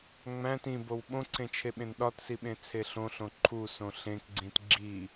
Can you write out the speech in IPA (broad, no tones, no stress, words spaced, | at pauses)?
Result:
ŋ͡mæ̃t ĩbow ɓõǀʰẽt͡ʃʰeɓẽn ɗɒtsiɓẽt͡sʰe ɬõɬõ ǃʰusõ ɬẽkɡ͡ǀĩt ɡ͡ǁi